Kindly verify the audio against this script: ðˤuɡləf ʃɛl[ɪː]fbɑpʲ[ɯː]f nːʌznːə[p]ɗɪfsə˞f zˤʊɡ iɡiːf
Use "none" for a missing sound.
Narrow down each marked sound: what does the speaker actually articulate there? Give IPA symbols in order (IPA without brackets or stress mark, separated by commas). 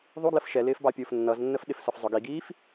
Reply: ɪː, ʊː, f